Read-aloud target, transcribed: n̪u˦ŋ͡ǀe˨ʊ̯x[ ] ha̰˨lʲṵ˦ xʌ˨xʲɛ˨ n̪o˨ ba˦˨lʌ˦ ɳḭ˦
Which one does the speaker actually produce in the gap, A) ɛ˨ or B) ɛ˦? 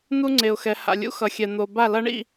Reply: A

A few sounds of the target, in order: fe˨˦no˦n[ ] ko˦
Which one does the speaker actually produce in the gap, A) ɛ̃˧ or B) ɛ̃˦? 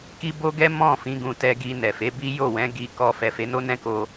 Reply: B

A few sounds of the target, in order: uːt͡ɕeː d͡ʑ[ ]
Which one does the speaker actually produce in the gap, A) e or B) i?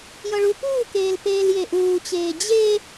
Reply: A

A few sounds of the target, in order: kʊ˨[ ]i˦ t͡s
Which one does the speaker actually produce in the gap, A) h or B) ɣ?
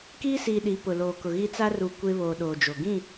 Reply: B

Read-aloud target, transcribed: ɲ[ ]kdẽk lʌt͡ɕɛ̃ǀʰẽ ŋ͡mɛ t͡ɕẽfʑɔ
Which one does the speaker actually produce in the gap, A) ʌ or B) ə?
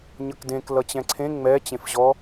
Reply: A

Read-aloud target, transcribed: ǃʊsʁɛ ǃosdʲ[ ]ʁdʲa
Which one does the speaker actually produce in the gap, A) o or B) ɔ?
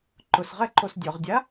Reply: B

